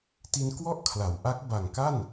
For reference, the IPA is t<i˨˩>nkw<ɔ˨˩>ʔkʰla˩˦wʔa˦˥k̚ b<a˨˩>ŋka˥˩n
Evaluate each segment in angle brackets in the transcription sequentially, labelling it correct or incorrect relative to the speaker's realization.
incorrect: i˧, incorrect: ɔ˥˩, correct

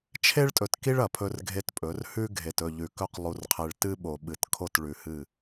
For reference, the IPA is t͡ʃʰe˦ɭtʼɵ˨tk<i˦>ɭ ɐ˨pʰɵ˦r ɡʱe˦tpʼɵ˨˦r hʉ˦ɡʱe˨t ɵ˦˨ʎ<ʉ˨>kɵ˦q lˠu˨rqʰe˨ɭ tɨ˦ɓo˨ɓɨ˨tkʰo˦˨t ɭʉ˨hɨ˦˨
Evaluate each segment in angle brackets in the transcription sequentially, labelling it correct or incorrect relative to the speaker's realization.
correct, correct

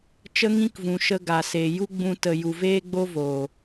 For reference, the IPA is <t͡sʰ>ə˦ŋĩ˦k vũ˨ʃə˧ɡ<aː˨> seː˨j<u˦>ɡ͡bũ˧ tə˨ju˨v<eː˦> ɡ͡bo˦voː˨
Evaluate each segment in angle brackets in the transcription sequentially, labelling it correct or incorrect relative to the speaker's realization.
incorrect: t͡ʃ, incorrect: a˨, correct, correct

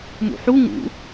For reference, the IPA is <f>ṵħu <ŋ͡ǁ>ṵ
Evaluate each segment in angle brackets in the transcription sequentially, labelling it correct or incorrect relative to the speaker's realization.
incorrect: m, incorrect: ŋ

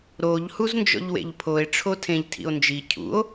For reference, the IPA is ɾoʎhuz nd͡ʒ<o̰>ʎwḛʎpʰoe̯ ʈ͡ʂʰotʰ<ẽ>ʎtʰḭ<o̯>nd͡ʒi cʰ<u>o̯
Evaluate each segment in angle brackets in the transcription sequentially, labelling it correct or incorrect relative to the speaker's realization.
incorrect: ɔ̰, correct, correct, incorrect: ṵ

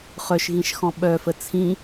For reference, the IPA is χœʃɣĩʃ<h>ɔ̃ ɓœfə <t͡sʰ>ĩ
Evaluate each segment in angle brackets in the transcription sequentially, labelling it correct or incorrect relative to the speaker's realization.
incorrect: x, correct

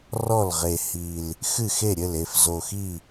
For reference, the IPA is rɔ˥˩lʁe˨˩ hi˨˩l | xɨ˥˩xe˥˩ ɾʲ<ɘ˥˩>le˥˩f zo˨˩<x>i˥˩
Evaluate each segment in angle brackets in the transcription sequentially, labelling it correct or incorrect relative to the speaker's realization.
correct, correct

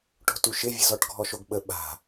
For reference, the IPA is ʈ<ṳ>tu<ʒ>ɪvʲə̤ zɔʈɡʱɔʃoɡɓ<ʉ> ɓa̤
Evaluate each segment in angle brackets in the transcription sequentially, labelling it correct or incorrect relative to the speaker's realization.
incorrect: o̤, incorrect: ʃ, incorrect: ə

